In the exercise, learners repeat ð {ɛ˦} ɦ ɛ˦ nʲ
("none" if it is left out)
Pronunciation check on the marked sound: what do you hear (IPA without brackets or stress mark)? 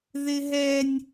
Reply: ɪ˦